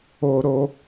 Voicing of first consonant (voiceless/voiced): voiced